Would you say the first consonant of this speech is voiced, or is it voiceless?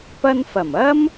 voiceless